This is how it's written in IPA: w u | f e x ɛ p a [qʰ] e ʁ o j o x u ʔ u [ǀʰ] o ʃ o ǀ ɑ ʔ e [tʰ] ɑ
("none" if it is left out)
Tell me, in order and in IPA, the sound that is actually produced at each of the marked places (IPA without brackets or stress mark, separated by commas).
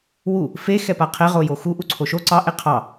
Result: qʰ, ǀʰ, qʰ